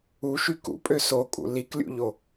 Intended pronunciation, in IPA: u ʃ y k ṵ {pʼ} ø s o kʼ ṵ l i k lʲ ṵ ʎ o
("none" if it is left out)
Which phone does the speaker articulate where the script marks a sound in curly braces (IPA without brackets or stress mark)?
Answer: pʼ